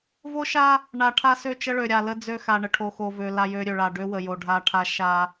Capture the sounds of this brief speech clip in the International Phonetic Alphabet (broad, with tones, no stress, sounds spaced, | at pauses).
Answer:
v o˦ ʃ a˦ | ɳ a˨ ʈʰ a˦ s ø˦˨ t͡ʃ ə˦ ɭ ø˨ ɾʲ a˨ l ə˦ d͡z ø˦ x a˨ ɳ ə˨ ʈʰ o˨ x o˨ v ø˨ l a˦˨ j ø˦ ɾʲ ø˨ ɭ a˨ ɖ ø˦ w ə˨ j o˨ ɖʱ a˨ ʈʰ a˦ ʃ a˦